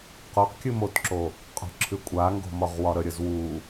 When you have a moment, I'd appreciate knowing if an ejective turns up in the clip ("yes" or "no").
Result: yes